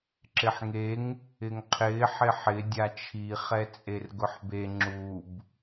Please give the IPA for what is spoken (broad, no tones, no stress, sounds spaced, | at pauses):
ǁ ɪ ħ ŋ e ŋ | ɪ ŋ qʰ ɪː ħ ɪ ħ ɪ dʲ a t͡ʃʰ i χ ɛ t͡sʼ e r ɡ ʊ ħ b e ŋ͡ǁ u b